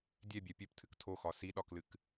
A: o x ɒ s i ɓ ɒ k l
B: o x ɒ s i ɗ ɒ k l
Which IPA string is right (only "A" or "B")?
B